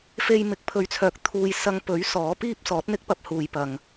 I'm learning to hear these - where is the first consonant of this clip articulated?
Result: lips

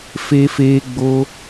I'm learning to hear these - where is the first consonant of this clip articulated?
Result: lips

